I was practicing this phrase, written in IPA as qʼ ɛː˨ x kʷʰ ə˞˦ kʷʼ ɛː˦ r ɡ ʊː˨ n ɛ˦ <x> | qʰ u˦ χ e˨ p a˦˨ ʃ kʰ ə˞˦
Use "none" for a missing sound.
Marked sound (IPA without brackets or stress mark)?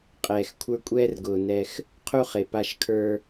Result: x